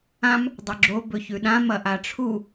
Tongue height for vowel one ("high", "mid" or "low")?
low